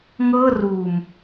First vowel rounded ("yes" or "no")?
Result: no